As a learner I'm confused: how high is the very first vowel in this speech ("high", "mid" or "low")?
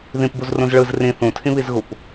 high